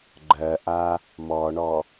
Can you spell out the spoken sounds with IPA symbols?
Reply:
ɡ͡ǃ ɜ ʔ a | m ɔ ɳ ɔ

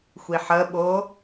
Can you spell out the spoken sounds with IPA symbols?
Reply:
xʷ i ħ ə ɓ o

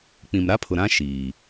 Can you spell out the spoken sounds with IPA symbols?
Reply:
k͡p ĩ˨ m ɾ a˦ pʰ ʊ˨ ɾ ã˦ ʃ iː˨

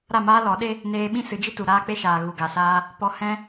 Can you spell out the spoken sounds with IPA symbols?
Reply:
ɾ a˦˨ m aː˦ l ɔ˨˦ ɗ e˦ | n eː˧ ɓ ĩ˦ s ɨ˨˦ d͡ʒ i˦ t u˨ ɾ aː˦ k͡p e˦ ʃ aː˨ ɣ u˨ ɡ a˨ s aː˦ | p ɔ˧ h ɛ̃˦

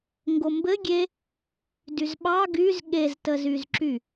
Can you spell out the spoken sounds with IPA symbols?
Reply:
ŋ ɡ o m b ɘ ɡʲ e | d y z ɓ ɑ ɡ y z ɠ e z t ə z y z ǁ y

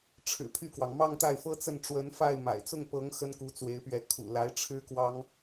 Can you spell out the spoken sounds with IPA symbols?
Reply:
ʈ͡ʂʰ ɻ̩˨˩ pʰ y˥˩ k w ɑ˩ ŋ m ɑ˥˧ ŋ t̪ a˥˩ ɪ̯ f ɤ˥ t͡s ə˥˩ n ʈ͡ʂ w ə˧˥ n f a˥˩ ɪ̯ m a̰˨˩ ɪ̯ t͡s ʊ˥˩ ŋ p ɤ˧˥ ŋ x ə˥ n k u˧˥ t͡s w e˧˥ ɪ̯ p ɥ ɛ˧˥ kʰ ṵ˨˩ l a˧˥ ɪ̯ ʈ͡ʂʰ ɻ̩˥ k w ɑ˥ ŋ

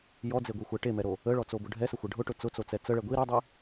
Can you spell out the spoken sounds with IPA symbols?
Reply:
j ɔ d͡z e ɡʷ i xʷ ɛ ʈ e m ɛ ɾ o | ə ɭ ɔ t͡s o b ʊ ɖʱ ɛ s ə xʷ ɛ ɖʱ ʊ ʈ ʊ t͡s ʊ t͡s o t͡s ɛ t͡s ə ɭ ɛ ɡʷ i ɾ ʊ dˤ i

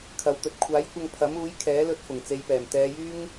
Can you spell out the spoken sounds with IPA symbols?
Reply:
kʰ ɐ˨ w t̪ ɵ˨ t̚ kʷʰ aː˨˥ j kʷ ɐ˧ ŋ pʰ ɐ˨˥ m uː˨˥ j kʰ ɛː˨˥ l ɵ˧ t̚ f ʊ˨˩ ŋ t͡s e˨˧ j p ɛː˨˩ m t̪ ɛː˨˧ j yː˥ ŋ

